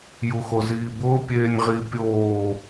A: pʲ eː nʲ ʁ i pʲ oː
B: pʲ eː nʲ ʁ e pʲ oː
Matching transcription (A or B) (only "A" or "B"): A